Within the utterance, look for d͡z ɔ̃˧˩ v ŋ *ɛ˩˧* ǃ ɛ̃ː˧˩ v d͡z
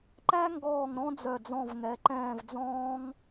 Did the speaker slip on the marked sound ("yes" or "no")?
no